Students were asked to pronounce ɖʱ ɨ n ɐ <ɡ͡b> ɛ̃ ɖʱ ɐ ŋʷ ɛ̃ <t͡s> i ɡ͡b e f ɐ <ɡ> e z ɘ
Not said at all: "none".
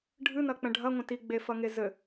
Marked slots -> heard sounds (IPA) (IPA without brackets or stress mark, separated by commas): k͡p, t, ŋ